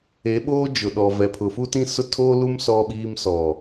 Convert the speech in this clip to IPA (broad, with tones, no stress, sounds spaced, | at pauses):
e˨˦ ɓ oː˦ d͡ʒ ʊ˨ ɗ ɔ˨ v ɛ˨ pʰ ʊ˨ f u˦ t ĩ˦ s ʊ˦ tʰ oː˦ l u˦ m s ɔ˦ ɓ iː˦ m s ɔ˨